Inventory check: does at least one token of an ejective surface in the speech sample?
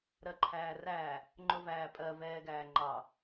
yes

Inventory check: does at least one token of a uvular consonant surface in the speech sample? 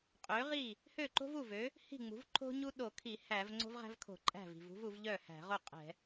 yes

